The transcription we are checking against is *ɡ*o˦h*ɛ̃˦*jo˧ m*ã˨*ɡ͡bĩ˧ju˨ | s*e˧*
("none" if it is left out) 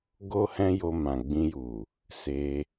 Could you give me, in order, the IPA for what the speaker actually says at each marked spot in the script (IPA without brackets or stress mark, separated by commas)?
ɡ, ɛ̃˦, ã˨, e˧